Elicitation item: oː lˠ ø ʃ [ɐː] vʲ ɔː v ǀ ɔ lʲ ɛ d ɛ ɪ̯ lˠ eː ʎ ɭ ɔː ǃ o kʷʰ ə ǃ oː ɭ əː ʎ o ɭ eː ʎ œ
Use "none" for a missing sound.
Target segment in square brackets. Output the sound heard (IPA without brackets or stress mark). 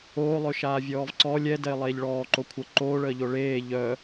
aː